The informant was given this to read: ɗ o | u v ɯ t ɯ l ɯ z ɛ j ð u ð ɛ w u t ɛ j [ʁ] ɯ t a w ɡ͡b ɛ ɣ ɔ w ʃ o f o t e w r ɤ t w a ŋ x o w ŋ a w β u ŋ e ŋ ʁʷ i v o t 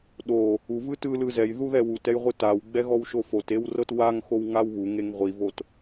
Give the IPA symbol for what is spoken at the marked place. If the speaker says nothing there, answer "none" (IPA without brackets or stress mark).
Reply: ʁʷ